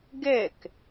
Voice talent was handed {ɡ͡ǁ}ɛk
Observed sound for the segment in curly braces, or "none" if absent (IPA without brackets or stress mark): ɡ